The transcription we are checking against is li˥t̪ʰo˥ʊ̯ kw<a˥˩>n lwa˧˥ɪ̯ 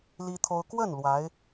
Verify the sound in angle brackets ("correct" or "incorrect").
incorrect